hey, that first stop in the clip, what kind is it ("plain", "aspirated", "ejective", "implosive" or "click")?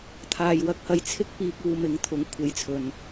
aspirated